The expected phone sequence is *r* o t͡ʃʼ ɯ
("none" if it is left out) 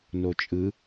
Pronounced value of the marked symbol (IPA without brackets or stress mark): n